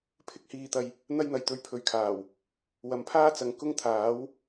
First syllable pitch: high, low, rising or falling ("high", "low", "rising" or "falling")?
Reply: high